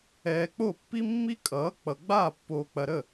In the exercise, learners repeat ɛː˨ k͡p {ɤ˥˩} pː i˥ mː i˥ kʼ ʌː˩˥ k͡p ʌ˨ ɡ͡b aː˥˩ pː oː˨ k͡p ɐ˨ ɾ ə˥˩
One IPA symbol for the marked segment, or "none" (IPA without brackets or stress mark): o˥˩